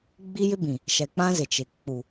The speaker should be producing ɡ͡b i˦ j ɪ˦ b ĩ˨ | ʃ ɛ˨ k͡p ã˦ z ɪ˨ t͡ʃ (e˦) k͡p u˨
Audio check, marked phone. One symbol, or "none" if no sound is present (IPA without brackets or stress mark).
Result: e˨